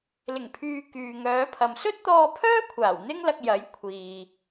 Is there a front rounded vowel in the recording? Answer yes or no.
yes